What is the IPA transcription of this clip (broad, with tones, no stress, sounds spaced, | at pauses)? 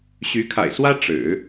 ɕ y˧˥ kʰ a̰˨˩ ɪ̯ s w ä˥ ʈ͡ʂ ɻ̩˨˩˦